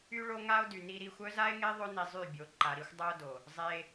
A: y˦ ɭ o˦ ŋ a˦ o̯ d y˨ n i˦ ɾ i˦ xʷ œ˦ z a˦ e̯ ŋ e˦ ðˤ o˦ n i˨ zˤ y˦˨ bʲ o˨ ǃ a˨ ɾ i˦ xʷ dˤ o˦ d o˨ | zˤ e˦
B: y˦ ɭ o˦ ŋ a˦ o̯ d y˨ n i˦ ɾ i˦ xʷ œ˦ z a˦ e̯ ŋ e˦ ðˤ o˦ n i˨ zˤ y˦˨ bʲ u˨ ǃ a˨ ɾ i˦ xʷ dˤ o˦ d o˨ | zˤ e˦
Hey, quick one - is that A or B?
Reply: A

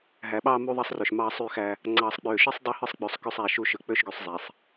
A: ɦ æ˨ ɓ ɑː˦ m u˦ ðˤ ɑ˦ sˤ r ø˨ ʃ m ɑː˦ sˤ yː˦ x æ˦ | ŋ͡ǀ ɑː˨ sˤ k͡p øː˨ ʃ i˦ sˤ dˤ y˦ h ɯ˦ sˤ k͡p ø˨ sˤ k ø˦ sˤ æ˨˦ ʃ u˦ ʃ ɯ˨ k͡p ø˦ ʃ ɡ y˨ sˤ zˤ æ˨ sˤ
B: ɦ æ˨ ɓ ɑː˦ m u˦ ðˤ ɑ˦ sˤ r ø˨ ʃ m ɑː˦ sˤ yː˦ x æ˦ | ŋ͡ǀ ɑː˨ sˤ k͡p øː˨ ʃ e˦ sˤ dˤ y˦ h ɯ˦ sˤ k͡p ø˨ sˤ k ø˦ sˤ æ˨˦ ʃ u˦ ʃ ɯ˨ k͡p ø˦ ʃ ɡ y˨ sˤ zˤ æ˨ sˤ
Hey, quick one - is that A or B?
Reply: A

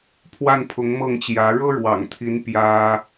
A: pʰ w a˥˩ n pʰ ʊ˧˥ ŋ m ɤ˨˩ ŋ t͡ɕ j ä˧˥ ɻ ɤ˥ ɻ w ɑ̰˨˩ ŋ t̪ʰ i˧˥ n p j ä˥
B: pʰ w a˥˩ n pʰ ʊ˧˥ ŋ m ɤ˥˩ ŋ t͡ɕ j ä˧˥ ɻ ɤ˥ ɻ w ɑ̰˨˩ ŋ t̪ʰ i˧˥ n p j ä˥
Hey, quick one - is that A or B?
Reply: B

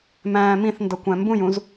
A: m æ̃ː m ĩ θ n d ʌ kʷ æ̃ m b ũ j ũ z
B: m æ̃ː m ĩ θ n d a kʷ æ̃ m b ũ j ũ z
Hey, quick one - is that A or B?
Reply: A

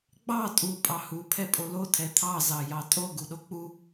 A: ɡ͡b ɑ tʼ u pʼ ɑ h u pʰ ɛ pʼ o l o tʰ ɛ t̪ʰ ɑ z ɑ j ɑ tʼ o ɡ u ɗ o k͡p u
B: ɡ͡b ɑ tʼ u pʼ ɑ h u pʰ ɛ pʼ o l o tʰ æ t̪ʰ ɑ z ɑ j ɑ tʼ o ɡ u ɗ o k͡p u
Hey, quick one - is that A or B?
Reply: A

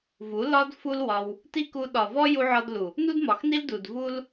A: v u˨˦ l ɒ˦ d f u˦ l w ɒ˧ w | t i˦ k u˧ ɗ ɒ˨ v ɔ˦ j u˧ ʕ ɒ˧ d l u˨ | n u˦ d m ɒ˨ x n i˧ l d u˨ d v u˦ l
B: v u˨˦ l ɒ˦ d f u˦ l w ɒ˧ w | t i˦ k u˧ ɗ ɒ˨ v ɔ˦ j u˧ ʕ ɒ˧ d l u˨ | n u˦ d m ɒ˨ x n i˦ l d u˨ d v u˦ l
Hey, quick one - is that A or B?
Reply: B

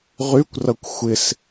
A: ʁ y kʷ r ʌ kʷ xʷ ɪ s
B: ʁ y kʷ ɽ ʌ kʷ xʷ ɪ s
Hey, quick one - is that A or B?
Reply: A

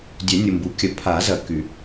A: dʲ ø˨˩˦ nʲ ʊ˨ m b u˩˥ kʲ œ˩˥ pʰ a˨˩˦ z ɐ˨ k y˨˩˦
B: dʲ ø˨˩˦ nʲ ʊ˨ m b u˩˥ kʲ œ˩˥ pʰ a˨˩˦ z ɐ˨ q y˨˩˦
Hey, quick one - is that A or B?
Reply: A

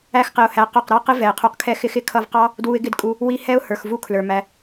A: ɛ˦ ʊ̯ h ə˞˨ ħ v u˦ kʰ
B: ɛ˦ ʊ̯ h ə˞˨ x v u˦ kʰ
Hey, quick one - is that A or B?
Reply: B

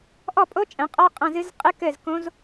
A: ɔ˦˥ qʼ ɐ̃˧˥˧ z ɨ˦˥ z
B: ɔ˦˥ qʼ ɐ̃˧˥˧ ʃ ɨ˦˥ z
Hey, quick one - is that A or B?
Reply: A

